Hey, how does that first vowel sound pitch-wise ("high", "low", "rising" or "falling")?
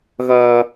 high